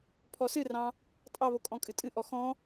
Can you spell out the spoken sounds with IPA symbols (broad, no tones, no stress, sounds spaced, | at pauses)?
pʰ ɔ s ɨ r ɑ̃ | tʼ ɑ β o kʼ ɔ̃ kʼ ɨ tʼ ɨ ʔ ɔ x ɔ̃